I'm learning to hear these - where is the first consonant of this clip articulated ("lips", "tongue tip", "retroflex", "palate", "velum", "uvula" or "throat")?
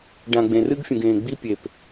retroflex